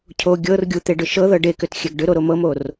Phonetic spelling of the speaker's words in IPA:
cʰo ɡʲɤr ɡʲut̪eɖʏ ʃɤðɤ ɖekʏtxʲɛɡ ɖʏɾoɾo mɤmor

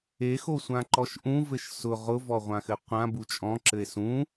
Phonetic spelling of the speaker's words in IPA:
exosʷã ǃɔʃʔũvɘʃ sʊ ʁʊvɔ ʁʷãxɘqʷã but͡ʃʼɔ̃ǁɘe̯ sũ

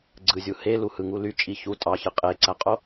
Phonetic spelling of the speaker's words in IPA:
ɡ͡ǀɯzʲu heluhɯŋu lyt͡ʃʼi çu tʼɑçɯ qʼeǀæqʼo

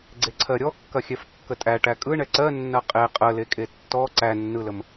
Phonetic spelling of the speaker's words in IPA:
ɡ͡ǀeǀʰɜɾʲɔkːɐ xʲɛfkːətʼæ ʈækʼɯ ɳɛǀɜnːɐ qʼe qʼəlekʼe tːɔ ǀænːɯləm

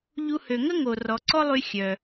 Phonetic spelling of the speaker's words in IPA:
ʎu˧ hø˩ŋə˥ ŋo˩ rɔ˩ǀɔ˥lˠy˧ xʲœ˩

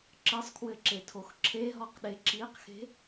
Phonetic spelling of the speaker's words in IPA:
ǁɘsˤkʰwɘǁetʰox ǁʰeɦɔqɗe ǁiqxe̤

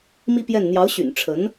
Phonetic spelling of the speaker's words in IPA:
mi˥pjɛ˥˩n n̪jɑ˧˥ʊ̯ɕy̰˨˩n ʈ͡ʂʰə˧˥n

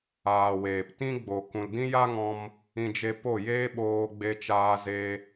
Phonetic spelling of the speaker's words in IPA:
aː˨weː˨p tĩ˦ɡ͡bo˨ kũ˨ldĩ˦ja˦ŋɔ̃˧m | ĩ˧d͡ʒe˧po˦˨ jeː˦ɓoː˧ɡ͡be˧t͡ʃaː˧ ze˧

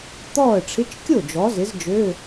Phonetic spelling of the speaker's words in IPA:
t̪ɔː˥˩ə̯ʈ͡ʂʰɪ˧˥˧t͡ʃ kʲo˥˩ d͡ʒɔ˩˥zɪ˩˥z d͡ʒø˧˥˧

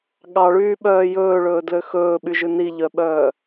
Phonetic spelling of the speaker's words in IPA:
ɠɑɭyːɓœː jɵːɭɵːdlø xɵːɓyʒʉ niʎœɓœː

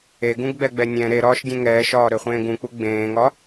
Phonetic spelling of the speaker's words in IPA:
eɡũɡɡ͡bɛɡ͡bɛ nʲɛ̃ ɾeɾɒːʃdʲẽ ŋɛːʃɒːɾøχʷẽː ɡũk͡pu ɡ͡bẽːŋɒ

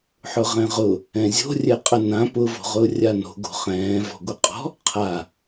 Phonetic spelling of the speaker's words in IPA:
ħʊʁɛ̃ʁʊ | ɛ̃zʲo̤rʲɛqʼə nã pʊvo̤ʁʊː rʲano̤ ɡo̤χɛ̃ː vɔ̤ɡʷəqʼɔ̤ | qʰa

